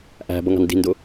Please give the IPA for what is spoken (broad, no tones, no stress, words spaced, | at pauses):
ʔæ̤bʌŋɑ̤n di̤ndʊ